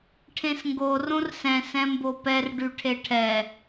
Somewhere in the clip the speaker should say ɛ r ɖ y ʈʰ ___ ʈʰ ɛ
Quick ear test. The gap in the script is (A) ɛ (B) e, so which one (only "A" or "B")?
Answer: B